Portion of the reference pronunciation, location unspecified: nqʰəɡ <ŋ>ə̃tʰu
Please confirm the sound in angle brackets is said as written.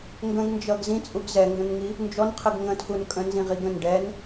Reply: yes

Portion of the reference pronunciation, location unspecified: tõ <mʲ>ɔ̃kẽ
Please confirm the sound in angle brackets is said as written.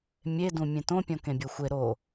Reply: no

